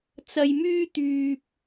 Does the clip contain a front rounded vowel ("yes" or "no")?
yes